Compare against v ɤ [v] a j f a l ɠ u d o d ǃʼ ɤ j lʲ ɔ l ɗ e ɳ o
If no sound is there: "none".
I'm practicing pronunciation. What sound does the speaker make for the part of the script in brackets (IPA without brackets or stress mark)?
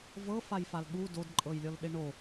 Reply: f